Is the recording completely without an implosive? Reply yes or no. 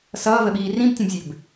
no